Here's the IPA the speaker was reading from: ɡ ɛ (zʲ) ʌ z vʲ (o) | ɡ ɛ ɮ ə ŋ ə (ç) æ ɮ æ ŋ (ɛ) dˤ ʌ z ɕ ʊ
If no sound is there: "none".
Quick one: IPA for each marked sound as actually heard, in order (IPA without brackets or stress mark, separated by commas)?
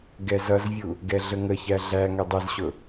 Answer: z, u, ç, ɛ